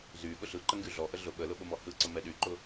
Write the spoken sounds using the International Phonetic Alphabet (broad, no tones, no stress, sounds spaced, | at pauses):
z y ɠ ʊ ɬ ɯ ǃ ə ŋ ɡ y ɮ ɔ ʔ ə ɮ ʊ ɓ ə l ʊ ɓ ʊ m ɔ h ɯ ǀ ə m ɛ ɗ y ǃ ʊ